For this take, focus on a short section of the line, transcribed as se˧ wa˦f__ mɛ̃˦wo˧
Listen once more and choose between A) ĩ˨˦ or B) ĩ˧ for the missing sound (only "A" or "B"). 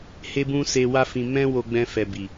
B